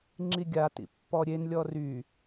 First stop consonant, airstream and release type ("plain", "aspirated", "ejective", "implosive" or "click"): click